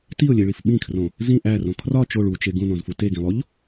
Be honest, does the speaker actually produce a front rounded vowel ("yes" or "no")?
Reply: no